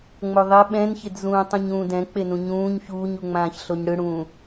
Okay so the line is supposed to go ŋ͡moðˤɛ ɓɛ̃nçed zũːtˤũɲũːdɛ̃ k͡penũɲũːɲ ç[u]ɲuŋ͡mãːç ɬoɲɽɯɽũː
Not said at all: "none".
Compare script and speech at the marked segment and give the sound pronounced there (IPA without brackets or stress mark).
uː